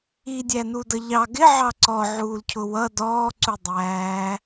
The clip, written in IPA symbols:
i dʲ æ n u d ʌ ʎ ɑ ɡ ɪ ʕ ɑ ǀ ɔ ʕ uː l cʰ ʊ w ʌ d ɔː ǀ u dˤ æː

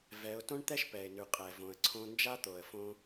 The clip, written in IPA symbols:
v ɛ˩˧ ʊ̯ t õ˥ ɳ t̪ ɛ˥ ʃ p ɛ˩ ɪ̯ n ʉ˩ qʼ ɛ˩ v õ˩ ə̯ ǀʰ õ˧ n d͡ʒ a˥ t̪ o˩ ə̯ f õ˧

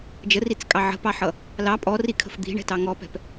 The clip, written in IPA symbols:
d͡ʒ ə r i t͡s kʼ ɑ ʕ ə̤ p ɑ ħ ʌ | l ɑ pʼ ɔ r i kʰ ə̤ f d̪ i̤ ɳ ɛ̤ t ɑ ŋ ɔ p ɛ̤ p

